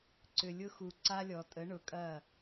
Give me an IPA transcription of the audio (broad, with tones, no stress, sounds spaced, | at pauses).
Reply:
ǀ ʏ˨ lʲ ʊ˦ x u˨ ǀ a˦ lʲ ɔ˨ tʼ ə˨˦ ɳ ʊ˨ kʼ ɐ˦˨